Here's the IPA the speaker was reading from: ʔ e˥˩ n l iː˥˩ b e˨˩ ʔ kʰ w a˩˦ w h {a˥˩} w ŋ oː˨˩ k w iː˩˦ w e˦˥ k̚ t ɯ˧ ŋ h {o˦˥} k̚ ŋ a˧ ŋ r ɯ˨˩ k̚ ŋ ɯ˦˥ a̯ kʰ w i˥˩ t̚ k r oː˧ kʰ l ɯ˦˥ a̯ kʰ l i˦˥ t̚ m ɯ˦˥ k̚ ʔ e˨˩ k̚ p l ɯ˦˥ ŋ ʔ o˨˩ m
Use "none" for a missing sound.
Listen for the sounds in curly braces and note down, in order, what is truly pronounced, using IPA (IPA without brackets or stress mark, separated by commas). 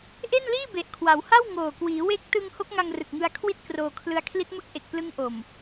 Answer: a˥˩, o˦˥